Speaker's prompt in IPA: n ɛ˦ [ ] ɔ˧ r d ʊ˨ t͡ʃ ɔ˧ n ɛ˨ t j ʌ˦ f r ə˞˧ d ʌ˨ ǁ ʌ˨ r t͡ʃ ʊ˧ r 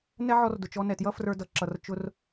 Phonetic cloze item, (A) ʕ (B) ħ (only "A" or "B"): A